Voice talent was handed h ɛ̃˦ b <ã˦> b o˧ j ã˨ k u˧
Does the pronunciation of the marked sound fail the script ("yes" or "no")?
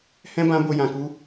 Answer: no